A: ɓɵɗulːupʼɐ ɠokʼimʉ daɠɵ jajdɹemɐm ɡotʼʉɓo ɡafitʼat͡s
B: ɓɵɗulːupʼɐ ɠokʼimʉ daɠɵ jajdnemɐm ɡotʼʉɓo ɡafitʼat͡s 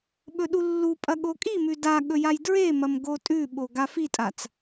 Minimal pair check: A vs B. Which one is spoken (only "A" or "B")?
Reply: A